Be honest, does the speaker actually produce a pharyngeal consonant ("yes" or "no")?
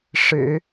no